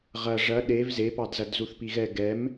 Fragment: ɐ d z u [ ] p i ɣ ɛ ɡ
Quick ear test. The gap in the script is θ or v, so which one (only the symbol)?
θ